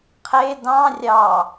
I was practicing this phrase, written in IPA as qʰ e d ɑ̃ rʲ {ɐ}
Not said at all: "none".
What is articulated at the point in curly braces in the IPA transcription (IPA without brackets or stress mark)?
ɑ